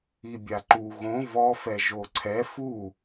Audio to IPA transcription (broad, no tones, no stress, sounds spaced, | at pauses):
i bʲ a ǃ u ɣ õ v ɔ f ɛ ʒ o ǀʰ ɛ f u